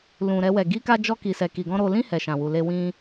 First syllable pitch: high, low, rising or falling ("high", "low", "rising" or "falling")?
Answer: low